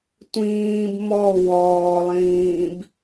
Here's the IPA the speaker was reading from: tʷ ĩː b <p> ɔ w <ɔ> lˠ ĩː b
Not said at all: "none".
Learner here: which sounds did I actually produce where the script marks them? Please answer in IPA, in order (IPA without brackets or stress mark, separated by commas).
m, ɔː